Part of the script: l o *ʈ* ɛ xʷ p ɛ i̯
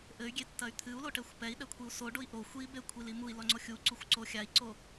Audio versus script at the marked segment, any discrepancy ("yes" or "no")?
no